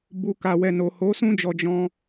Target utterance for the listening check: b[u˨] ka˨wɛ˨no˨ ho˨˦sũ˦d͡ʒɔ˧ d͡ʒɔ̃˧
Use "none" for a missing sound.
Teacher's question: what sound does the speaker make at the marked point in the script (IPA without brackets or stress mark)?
u˨